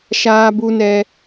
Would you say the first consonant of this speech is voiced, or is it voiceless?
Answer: voiceless